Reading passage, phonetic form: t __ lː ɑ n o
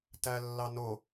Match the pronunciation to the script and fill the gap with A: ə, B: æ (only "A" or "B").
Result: B